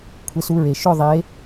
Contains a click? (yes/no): no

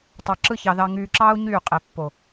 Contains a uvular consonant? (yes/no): yes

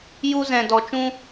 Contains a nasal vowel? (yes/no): yes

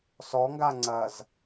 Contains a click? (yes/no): yes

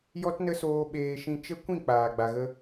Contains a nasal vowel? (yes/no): yes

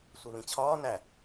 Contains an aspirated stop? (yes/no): yes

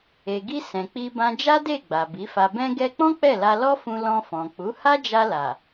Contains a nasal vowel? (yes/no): yes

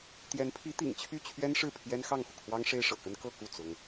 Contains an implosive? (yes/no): no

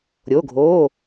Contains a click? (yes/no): no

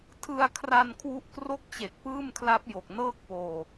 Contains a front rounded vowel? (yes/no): no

